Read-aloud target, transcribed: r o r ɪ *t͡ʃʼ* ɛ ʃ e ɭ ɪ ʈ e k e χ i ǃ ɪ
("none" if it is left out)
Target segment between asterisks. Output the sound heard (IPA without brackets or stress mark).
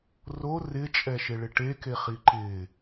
t͡ʃʼ